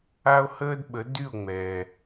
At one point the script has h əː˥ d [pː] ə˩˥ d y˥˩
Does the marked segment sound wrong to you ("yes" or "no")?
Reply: yes